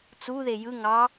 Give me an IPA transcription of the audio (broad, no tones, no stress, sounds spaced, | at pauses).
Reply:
t͡s u ð e j ɯ ŋ ɑ